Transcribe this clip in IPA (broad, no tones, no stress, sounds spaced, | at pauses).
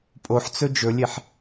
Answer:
pʼ o ħ t͡s ɵ d͡ʒ ɵ lʲ e ħ